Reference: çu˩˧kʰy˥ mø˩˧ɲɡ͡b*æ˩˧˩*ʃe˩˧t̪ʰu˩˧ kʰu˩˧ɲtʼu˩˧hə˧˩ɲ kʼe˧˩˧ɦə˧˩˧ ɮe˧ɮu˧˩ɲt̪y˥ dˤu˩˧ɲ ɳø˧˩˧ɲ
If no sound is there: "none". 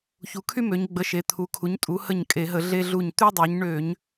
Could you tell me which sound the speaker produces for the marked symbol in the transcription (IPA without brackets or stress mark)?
ə˩˧˩